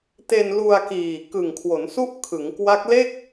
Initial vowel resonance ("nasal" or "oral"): oral